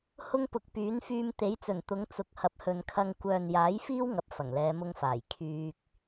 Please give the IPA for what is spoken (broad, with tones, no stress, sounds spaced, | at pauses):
h ʊ˧ ŋ p ʊ˨ k̚ p yː˨˥ n f yː˧ m t̪ e˨˥ j t͡s ɵ˨˩ n t̪ ʊ˨˧ ŋ t͡s ʊ˨ k̚ h ɐ˨˥ p̚ h ɵ˨ n kʰ ɐ˧ ŋ kʷ œː˨ n j aː˨˥ j f iː˥ w ŋ ɐ˨ p̚ f ɐ˨˩ ŋ l ɛː˨˧ m ʊ˧ ŋ f aː˨˩ j kʰ yː˧ k̚